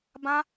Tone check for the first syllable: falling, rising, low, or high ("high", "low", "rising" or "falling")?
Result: high